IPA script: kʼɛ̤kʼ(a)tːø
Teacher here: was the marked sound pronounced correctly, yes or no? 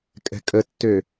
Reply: no